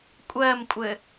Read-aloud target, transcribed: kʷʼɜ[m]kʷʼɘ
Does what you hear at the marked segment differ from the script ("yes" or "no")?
no